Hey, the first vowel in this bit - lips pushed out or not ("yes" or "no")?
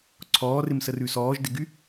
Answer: yes